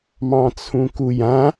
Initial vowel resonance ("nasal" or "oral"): nasal